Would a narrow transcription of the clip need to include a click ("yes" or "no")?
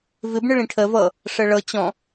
no